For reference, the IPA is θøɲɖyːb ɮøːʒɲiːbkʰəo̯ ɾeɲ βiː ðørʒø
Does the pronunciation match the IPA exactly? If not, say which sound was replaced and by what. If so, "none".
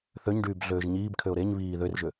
ə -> ø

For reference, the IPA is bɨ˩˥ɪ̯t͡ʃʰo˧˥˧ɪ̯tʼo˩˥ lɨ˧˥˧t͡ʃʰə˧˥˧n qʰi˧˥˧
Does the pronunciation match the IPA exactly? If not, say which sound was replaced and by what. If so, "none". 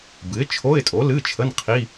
none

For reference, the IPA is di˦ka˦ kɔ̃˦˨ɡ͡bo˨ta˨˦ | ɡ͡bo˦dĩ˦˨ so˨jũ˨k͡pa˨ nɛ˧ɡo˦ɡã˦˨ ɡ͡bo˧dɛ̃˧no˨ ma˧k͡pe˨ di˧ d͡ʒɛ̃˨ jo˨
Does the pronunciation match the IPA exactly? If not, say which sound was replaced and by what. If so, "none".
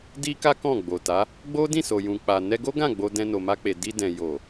d͡ʒ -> d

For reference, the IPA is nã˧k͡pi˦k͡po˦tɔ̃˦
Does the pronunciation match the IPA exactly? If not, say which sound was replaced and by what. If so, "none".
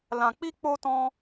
n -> l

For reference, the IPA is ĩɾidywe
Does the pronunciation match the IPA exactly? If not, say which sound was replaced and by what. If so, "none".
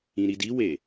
y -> i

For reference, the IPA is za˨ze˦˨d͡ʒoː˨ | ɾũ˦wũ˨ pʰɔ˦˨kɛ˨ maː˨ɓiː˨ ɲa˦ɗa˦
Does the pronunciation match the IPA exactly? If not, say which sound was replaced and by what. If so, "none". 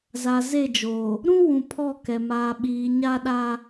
none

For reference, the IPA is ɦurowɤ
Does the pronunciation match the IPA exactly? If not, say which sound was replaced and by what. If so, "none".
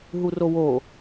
ɤ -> o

